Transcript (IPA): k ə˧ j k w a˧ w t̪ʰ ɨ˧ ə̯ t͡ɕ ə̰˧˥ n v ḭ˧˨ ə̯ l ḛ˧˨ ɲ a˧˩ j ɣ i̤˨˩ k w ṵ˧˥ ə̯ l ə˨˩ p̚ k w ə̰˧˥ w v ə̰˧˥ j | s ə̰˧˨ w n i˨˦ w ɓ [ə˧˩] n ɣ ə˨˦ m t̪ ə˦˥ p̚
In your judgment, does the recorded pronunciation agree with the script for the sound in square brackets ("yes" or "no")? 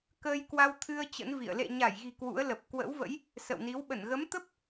yes